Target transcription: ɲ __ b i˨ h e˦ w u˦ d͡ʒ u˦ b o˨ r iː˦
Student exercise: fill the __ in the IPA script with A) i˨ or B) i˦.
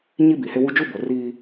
B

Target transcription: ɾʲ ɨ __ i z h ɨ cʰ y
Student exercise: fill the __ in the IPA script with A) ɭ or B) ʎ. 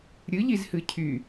B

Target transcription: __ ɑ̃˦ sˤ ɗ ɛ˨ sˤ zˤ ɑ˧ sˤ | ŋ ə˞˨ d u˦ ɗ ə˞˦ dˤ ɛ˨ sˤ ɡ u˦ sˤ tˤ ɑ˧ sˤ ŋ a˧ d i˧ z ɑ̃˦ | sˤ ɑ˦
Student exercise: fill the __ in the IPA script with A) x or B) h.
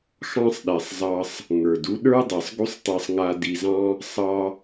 A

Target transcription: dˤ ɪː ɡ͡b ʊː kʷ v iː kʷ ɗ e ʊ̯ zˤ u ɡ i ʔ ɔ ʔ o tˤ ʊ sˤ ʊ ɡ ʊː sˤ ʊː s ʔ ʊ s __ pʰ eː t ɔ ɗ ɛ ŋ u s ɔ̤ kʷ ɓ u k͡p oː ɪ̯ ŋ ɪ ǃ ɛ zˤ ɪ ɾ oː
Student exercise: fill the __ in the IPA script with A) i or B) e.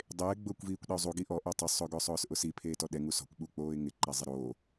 A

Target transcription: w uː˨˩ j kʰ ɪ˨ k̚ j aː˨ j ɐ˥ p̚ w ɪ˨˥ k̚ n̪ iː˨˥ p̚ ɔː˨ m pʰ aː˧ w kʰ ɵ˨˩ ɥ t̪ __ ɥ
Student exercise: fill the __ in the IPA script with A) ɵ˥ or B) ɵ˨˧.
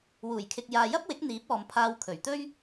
A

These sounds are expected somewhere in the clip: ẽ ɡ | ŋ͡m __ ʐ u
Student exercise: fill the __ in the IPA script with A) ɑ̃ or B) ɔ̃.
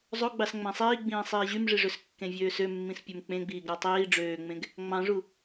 A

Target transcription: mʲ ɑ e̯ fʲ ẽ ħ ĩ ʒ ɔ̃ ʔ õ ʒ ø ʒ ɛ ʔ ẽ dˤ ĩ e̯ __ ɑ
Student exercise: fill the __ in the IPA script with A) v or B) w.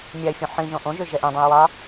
B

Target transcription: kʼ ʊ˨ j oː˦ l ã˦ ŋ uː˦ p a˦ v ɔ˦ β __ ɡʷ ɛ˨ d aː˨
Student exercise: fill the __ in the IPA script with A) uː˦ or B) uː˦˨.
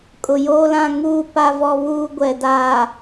A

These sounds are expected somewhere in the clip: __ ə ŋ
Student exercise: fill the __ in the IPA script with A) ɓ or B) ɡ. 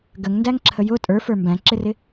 B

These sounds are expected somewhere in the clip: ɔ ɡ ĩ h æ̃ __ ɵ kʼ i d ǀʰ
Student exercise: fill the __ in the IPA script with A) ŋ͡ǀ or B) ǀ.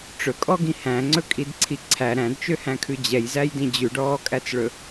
A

